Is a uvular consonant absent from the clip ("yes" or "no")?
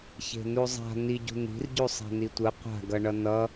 no